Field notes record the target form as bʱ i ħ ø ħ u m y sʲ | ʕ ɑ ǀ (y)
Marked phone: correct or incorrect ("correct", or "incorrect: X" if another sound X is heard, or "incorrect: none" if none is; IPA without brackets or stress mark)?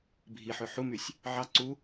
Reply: incorrect: u